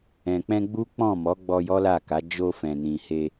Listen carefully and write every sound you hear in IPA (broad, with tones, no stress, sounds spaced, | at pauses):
ɛ̃˨ k͡p ɛ̃˧ ɡ͡b u˦ k͡p ɔ̃˦˨ m ɔ˨˦ ɡ͡b ɔ˧ j ɔ˦ l a˦˨ k a˨˦ d͡ʒ o˧ f ɛ̃˨ n ĩ˨ h e˧